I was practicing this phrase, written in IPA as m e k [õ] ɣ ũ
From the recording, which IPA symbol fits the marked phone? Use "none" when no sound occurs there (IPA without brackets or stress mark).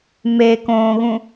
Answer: õː